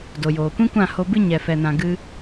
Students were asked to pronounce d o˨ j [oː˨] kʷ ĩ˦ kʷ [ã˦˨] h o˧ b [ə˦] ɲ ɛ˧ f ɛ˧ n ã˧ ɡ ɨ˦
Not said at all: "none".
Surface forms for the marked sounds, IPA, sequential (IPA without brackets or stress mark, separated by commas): oː˨, ã˦˨, ɨ˦